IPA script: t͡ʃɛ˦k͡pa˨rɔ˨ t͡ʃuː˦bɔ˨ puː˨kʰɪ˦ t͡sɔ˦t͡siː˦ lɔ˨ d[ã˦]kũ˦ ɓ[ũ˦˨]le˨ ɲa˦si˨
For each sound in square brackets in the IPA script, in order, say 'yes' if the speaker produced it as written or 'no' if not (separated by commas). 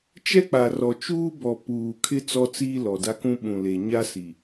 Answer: no, no